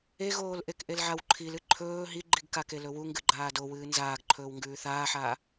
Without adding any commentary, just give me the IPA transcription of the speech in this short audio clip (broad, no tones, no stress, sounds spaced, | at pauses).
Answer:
e ɣ oː l ʔ e k ʔ e l ʕ a w ǃʰ i l ɨ ǃʰ ɵː ɦ i ɡ͡ǃ i ɡ k a k e l ɵ w u ŋ ɡ ɨ ɡ͡ǃ aː d o w ɨː n z aː ɡ ǃʰ ɵː w ŋ ɡ ʉː θ aː ħ aː